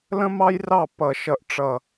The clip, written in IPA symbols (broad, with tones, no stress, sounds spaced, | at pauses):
l ə̃˥ m ɑ˥ j r ɑ˥˩ p ʌ˧˩˧ ʃ ʌ˧˩ ʔ ʈ͡ʂ ʌ˧˩